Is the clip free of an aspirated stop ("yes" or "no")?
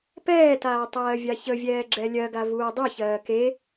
yes